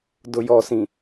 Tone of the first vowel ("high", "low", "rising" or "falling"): low